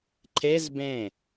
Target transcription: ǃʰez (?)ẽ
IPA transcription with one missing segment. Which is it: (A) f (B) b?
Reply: B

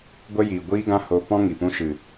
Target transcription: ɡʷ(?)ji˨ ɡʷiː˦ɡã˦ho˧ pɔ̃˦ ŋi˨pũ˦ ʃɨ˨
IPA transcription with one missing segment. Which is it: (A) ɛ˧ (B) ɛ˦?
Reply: B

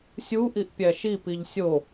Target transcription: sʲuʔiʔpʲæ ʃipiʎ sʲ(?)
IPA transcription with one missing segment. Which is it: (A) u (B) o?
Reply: B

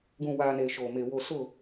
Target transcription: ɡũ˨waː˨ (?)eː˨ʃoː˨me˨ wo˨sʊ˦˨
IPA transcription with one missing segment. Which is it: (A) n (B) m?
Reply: A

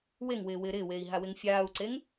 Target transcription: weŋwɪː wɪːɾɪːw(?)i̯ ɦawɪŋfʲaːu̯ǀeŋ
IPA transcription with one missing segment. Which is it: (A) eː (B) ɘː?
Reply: A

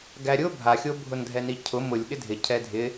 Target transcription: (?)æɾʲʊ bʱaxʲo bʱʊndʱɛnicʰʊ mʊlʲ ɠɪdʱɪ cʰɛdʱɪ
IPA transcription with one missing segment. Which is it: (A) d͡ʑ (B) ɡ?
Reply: B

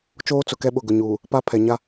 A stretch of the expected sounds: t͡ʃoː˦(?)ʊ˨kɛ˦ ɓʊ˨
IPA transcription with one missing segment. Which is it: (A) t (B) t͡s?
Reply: B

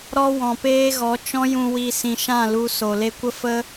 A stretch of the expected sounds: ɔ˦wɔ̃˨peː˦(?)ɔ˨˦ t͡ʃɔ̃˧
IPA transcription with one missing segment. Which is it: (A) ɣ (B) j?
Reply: A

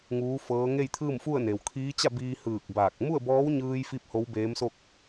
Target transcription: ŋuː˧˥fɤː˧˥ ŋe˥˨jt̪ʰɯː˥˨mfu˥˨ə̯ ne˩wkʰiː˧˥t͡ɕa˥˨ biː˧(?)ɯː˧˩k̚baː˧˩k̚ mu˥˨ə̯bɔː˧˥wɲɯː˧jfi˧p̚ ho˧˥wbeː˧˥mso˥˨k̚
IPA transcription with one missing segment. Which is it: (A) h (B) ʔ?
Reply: A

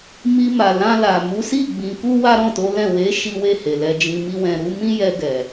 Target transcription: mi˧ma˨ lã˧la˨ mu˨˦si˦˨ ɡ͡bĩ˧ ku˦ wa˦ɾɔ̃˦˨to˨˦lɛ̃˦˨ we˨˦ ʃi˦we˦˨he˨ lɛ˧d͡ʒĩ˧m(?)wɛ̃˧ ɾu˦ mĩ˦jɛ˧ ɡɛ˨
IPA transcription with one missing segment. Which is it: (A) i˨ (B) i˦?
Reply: B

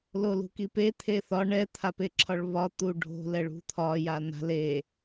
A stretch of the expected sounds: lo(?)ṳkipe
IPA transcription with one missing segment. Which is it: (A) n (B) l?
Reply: B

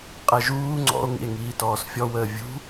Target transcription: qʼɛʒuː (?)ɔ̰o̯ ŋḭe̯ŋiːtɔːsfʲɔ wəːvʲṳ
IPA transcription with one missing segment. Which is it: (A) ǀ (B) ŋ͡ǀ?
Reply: B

